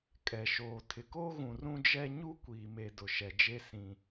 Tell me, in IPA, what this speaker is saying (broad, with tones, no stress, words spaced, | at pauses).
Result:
kʼɛ˨ʃoː˨ tʰɪ˨koː˦ɣũ˨rũ˦ d͡ʒɛ˦ ɲu˦kʷiː˨me˨ dʊ˨ʃɛ˨d͡ʒe˦ sĩ˦